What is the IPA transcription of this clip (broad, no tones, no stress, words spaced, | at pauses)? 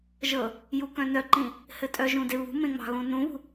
ʒɤ | jukœ̃nœǃĩ | hɘtʼœʒũ deβṳmẽŋ͡mɑ̤ ɣũnũβṳ